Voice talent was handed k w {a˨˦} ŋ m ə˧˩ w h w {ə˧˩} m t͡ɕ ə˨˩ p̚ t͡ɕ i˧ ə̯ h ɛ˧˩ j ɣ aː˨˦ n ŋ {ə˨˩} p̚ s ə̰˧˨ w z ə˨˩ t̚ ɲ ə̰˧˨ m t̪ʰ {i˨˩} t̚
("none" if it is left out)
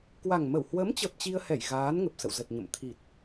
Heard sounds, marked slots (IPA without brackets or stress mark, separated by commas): a˨˩, ə˨˦, ə˨˩, i˨˩